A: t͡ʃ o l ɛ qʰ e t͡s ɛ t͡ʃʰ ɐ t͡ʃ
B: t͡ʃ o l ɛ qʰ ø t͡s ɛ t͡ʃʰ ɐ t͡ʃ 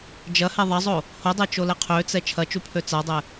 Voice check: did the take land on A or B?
B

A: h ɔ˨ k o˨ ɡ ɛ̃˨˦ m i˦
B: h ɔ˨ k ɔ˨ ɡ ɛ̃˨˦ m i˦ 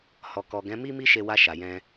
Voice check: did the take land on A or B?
B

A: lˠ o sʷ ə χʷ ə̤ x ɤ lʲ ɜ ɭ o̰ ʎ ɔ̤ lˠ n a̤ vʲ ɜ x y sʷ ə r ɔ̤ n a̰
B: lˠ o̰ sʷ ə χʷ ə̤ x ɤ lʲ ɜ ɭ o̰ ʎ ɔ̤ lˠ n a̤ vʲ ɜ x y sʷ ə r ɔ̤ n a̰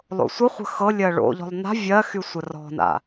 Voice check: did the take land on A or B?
B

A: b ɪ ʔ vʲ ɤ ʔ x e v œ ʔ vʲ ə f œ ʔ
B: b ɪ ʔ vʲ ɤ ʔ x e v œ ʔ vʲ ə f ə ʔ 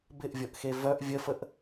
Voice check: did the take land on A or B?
B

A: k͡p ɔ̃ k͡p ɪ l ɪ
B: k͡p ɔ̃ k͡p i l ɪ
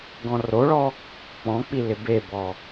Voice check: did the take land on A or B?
B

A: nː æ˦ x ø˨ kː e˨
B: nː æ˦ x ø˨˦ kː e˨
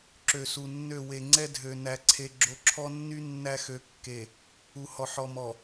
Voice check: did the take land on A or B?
B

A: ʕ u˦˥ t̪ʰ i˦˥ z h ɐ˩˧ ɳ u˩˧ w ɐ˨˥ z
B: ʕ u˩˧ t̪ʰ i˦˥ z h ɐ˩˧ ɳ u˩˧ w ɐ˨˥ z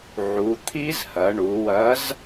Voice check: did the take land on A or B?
B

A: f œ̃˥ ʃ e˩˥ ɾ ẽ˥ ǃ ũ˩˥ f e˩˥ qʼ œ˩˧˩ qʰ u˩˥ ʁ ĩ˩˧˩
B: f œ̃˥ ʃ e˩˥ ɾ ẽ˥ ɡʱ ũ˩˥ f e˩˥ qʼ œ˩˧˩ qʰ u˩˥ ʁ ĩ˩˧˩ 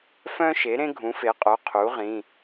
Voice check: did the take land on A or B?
B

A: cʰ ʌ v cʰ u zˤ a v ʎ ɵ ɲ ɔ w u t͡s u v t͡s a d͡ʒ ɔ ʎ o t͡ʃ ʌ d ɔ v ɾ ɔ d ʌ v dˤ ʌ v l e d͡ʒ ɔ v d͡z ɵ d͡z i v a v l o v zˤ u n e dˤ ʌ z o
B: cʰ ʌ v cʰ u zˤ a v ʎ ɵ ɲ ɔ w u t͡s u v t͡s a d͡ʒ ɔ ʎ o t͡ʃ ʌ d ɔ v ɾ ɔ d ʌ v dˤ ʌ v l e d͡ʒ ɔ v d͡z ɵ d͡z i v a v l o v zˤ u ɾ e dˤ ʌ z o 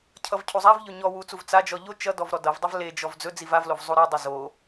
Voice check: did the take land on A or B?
B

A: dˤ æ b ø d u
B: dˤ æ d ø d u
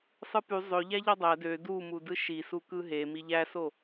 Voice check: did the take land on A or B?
B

